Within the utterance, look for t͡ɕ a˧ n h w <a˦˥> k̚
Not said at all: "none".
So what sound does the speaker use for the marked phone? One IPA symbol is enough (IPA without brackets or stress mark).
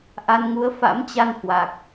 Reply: a˨˩